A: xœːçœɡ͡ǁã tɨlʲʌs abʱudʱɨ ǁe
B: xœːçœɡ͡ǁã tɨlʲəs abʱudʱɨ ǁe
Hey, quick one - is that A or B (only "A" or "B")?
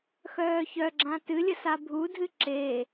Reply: B